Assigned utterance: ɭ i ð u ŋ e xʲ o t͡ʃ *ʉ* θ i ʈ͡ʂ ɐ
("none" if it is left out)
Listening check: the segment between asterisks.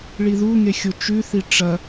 ʉ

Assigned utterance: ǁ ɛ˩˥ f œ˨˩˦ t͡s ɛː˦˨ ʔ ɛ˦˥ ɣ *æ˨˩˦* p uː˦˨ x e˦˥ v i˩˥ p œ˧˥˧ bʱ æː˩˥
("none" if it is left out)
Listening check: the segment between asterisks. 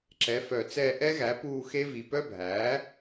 æ˩˥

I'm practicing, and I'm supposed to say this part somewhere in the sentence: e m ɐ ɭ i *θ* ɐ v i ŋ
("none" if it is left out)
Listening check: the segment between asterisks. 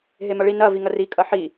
n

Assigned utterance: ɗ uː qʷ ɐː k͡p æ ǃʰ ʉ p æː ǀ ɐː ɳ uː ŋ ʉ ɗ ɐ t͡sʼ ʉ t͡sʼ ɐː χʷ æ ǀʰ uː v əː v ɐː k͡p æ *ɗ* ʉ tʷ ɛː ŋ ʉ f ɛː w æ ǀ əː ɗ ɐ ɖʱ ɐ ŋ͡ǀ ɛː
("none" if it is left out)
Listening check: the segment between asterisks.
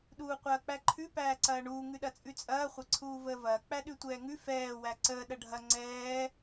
ɗ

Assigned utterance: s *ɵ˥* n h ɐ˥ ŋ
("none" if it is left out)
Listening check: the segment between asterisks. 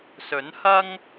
ɵ˨˥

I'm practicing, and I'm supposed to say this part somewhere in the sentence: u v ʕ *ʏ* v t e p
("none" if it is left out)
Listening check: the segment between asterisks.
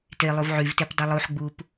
y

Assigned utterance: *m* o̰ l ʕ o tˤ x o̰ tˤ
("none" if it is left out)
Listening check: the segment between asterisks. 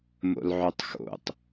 m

